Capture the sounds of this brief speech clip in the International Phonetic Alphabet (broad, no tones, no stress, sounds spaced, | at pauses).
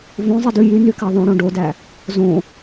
v õ zˤ i d ʉ j y n y k æ ðˤ õ ɽ õ ɖ o d æ | z õ